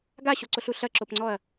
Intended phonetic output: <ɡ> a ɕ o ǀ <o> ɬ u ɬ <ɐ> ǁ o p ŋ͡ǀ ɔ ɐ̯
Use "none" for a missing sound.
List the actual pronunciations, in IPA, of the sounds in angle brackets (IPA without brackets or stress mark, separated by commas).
ɡ, o, ɐ